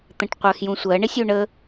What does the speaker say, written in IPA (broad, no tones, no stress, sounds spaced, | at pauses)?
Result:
t̪ ə̃ ʈ qʷ ɜ x j ũ sʷ ɜ ɳ ɪ sʲ u ɳ ə